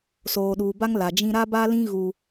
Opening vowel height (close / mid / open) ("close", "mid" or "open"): mid